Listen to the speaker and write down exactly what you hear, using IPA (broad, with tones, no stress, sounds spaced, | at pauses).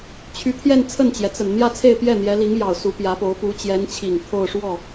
t͡ɕʰ y˧˥ t̪ʰ j ɛ˥˧ n t͡sʰ ə˥˩ n t͡ɕ j ɛ˩ t͡s ə˨˩ n n̪ j ä˥˧ t͡sʰ e˥˧ ɪ̯ p j ɛ˥˩ n̪ j ɛ˧˥ l i˧˥ ŋ j ɑ˨˩ ʊ̯ s u˧˥ p j ä˧˥ p o˧˥ ʊ̯ p u˧˥ t͡ɕ j ɛ˧˥ n t͡ɕʰ i˨˩ ŋ t̪ʰ o˥˧ ʊ̯ ʂ w ɔ˥˩